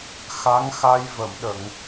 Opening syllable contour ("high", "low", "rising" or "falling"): rising